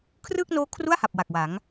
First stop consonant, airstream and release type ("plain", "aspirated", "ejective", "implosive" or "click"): aspirated